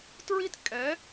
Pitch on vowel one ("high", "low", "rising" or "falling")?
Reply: high